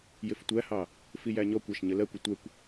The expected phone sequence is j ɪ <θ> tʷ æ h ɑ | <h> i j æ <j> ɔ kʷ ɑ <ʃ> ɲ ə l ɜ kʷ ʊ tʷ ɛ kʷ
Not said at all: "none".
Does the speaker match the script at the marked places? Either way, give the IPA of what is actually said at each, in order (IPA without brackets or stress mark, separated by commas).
f, f, ɲ, ʃ